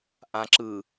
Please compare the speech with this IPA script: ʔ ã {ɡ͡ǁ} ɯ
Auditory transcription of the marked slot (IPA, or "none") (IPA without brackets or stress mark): ǁ